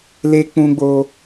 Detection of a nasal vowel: present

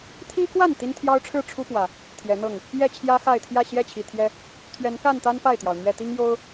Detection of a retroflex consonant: present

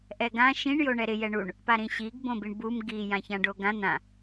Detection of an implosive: absent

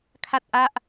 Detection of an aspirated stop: present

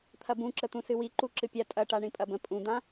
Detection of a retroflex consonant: present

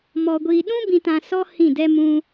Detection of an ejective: absent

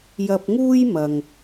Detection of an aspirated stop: absent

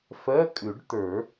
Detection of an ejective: present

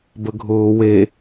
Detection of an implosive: absent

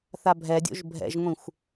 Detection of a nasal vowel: present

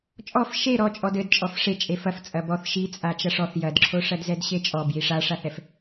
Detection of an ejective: present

